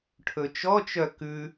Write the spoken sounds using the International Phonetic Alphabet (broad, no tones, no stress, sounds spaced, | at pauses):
ʈʰ ɵ t͡ʃ ɔ t͡ʃ œ k ʉ